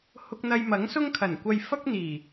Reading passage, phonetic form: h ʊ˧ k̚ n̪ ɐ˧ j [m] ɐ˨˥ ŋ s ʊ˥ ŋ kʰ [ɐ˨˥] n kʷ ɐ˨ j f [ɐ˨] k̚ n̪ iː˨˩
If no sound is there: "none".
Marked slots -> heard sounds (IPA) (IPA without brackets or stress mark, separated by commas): m, ɐ˨˩, ɐ˥